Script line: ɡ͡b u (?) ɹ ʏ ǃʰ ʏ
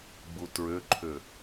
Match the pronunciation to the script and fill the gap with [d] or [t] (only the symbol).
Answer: t